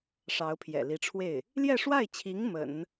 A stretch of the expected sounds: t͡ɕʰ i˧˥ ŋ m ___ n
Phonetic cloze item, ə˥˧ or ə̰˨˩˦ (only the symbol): ə̰˨˩˦